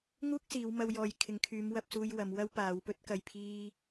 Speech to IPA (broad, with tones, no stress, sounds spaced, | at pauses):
ŋ uː˥ k̚ s iː˨˧ w m ɐ˧ w j ɔː˨ j kʰ ɪ˨ ŋ kʰ yː˨˧ m w ɐ˧ p̚ s uː˧ j w ɐ˨˧ m w ɐ˥ w p aː˨˧ w p ɵ˥ t̚ k ɐ˧ j pʰ iː˥